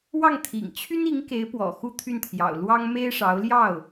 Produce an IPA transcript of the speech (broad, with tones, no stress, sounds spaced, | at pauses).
w ɑ˥˩ ŋ t̪ʰ ḭ˨˩ ŋ t͡ɕʰ y˥ n i˧˥ ŋ k e˧˥ ɪ̯ p w ɔ̰˨˩ x u˥ t̪ʰ y˥˩ n t̪ʰ j ɑ̰˨˩ ʊ̯ l w ɑ˥ ŋ m e˥ ɪ̯ ʂ ɑ˧˥ ʊ̯ l j ɑ˥˩ ʊ̯